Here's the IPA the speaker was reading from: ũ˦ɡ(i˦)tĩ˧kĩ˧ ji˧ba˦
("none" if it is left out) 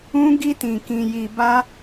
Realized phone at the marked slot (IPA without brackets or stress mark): i˦